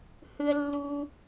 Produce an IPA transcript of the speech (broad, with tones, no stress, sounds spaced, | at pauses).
h ɯ˦ ə̯ lː u˦